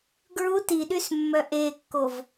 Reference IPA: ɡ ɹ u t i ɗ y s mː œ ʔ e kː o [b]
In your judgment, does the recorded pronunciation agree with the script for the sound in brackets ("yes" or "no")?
no